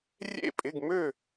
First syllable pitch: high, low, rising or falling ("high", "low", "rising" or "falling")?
falling